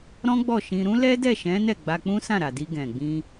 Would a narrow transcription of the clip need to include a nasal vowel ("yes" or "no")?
yes